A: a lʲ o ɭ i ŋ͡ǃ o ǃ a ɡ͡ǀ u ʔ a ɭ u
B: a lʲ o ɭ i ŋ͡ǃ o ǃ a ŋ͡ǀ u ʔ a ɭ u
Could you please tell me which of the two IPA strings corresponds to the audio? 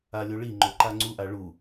B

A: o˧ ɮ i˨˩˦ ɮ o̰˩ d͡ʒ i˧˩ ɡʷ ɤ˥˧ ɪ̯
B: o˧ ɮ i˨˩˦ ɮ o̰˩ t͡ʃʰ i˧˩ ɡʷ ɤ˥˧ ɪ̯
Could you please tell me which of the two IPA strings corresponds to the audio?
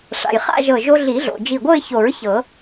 A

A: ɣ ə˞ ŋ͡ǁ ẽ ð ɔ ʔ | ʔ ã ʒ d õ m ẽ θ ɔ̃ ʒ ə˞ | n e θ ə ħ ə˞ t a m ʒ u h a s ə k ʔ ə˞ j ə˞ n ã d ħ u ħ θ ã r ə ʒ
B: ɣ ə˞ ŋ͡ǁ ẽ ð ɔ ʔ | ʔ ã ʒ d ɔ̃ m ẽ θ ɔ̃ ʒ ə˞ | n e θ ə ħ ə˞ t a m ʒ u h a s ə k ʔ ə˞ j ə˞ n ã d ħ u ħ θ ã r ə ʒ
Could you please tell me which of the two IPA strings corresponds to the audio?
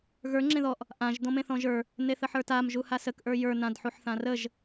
B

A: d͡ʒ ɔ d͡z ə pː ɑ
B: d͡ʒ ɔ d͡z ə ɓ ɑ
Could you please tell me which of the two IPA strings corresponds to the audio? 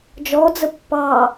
A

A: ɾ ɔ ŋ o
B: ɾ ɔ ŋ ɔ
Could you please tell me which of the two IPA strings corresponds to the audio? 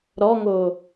A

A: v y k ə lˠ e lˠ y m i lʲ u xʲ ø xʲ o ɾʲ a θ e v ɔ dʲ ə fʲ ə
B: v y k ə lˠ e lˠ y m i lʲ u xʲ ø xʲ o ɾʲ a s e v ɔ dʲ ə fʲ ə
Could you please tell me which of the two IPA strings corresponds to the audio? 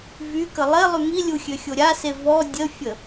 B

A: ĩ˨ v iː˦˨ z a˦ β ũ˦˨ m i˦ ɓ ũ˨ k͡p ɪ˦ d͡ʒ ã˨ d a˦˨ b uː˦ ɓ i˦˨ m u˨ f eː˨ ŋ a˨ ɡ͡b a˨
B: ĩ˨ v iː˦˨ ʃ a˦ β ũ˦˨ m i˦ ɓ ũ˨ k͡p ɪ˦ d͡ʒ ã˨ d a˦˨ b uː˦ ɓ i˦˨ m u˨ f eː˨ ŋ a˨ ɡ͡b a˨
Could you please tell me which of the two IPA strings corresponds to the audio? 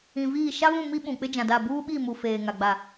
B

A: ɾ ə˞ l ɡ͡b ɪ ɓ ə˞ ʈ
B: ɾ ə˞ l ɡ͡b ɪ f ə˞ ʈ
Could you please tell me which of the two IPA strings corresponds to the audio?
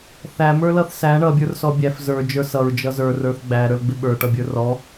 A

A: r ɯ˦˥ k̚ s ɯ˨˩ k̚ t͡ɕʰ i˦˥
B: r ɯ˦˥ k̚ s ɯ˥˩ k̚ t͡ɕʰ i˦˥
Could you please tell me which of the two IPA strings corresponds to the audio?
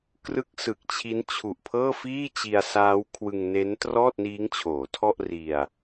A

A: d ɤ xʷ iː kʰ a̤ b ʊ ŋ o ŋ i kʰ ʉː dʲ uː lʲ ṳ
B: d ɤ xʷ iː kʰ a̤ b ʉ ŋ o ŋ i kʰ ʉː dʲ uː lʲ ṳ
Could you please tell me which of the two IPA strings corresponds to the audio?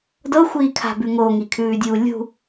B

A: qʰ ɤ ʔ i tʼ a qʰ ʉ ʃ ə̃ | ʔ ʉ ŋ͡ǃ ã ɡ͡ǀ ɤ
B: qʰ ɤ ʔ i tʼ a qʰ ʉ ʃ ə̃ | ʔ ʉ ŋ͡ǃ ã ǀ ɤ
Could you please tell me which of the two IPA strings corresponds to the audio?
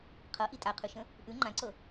B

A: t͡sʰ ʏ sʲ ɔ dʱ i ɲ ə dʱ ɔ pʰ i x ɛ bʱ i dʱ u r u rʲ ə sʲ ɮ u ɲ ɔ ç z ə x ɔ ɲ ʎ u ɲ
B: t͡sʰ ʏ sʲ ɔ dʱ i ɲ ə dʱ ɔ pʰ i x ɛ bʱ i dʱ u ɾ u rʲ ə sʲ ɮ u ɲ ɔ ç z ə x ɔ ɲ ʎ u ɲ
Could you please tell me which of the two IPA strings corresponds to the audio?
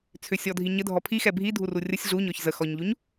A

